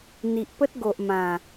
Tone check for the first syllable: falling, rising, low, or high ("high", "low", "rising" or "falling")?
low